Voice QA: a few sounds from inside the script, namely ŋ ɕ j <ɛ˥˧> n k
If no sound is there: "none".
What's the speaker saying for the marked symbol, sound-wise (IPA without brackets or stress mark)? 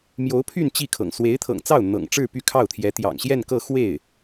ɛ˥˧